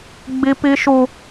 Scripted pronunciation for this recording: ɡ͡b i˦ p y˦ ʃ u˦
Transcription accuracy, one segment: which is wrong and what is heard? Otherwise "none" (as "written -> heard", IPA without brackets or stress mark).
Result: y˦ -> i˦